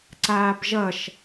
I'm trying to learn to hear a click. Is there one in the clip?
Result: yes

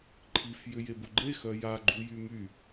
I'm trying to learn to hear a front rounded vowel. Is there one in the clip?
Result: yes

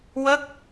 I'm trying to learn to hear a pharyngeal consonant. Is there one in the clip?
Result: no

